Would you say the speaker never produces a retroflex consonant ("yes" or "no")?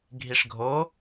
no